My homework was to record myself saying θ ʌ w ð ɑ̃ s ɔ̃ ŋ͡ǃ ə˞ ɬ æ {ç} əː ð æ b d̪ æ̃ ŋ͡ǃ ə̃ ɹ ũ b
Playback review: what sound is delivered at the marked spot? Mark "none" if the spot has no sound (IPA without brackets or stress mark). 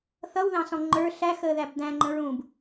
x